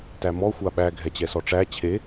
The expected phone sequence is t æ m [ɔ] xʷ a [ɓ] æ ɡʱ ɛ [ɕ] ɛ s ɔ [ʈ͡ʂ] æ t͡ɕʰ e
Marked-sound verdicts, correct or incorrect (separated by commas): correct, correct, incorrect, correct